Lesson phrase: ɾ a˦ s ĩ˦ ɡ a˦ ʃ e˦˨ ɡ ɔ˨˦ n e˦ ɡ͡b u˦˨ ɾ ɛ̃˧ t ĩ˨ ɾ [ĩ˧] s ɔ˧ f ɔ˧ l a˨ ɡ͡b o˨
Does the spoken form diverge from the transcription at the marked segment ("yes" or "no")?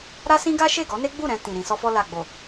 no